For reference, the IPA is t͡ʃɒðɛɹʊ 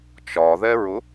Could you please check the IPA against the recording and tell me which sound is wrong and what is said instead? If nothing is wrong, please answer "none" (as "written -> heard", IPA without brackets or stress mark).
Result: none